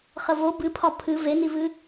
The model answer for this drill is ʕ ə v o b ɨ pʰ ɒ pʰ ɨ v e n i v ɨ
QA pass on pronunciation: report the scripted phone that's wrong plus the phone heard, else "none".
ʕ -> χ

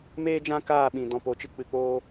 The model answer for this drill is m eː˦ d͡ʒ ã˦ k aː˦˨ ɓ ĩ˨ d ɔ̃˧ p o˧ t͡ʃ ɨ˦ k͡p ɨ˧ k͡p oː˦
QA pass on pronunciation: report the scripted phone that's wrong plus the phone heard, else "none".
none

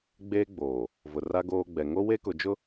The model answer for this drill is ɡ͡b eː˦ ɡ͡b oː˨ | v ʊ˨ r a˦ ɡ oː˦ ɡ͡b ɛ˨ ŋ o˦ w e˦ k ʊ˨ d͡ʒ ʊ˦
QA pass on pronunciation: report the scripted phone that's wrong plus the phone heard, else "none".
none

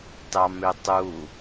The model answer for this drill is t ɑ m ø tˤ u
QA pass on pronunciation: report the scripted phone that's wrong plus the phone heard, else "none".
none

